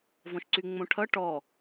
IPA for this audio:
v ɔ̃ ʃ ǀ y ŋ͡m õ ʈʰ ʌ ʈ ɔ

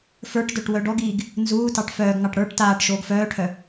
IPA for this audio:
f ə˞ ʈ d œ ʈ w œ ɖ ɔ ɡ iː ɡ | n z uː t ɑ ʈ f œː ɡ ŋ ɑ ʈ ɽ ə˞ ʈ t aː ʈ ʃ oː ɡ f œː ʈʰ œ

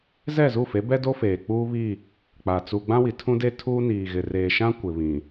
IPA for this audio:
z ɛ˦˨ z u˦˨ f e˨˦ b ɛ˦ d o˦ f eː˨ k͡p uː˦ β i˦˨ | k͡p a˨ t͡s u˨ ɡ͡b ã˦ w i˨ tʰ ũ˦ d e˦ tʰ uː˦ n iː˨ ɣ ɪ˨ r eː˨ ʃ ã˦ kʷ ɪ˨ β ĩ˨

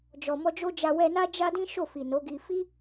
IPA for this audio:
d͡ʒ ɔ˨ m ɔ˧ d͡ʒ o˦ d͡ʒ a˧ w ɛ˧ n a˦ d͡ʒ a˦ d ĩ˦ ʃ o˦˨ f i˨ n o˨˦ ɡ i˧ f i˦

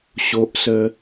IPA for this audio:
ɕ o˦ ʔ s ə˦

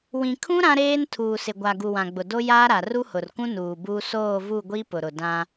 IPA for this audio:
w ĩ˨ kʰ ũ˦ ɾ ã˦ ɾ eː˦ n tʰ uː˨ s ɪ˨ ɡʷ a˨ ɡ u˨ w ã˨ ɡ͡b ʊ˨ d o˦ j aː˦ ɾ a˨ r u˦ h ʊ˨ r k ũ˦ n uː˨ b u˦ s oː˦˨ v u˦˨ ɡʷ i˦ p ʊ˨ ɾ ʊ˨ d ã˦

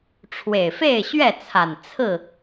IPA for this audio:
ʈ͡ʂʰ w e˨˩ ɪ̯ f e˥˨ ɪ̯ ɕ ɥ ɛ˥˨ t͡sʰ a˨˩ n t͡sʰ ɹ̩˥˨

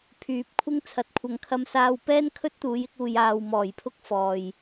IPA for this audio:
pʰ yː˨˥ p̚ kʷʰ ɪ˥ ŋ t͡sʰ ɐ˧ t̚ kʷʰ ɐ˧ ŋ kʰ ɐ˥ m s aː˧ w p ɛː˥ n kʰ ɵ˥ t̚ t̪ uː˨˧ j ɪ˥ k̚ uː˧ j aː˧ w m ɔː˨˩ j pʰ ʊ˥ k̚ f ɔː˨ j

